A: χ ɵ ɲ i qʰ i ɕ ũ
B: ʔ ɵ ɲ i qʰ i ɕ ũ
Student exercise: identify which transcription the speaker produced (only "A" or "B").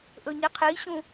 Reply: B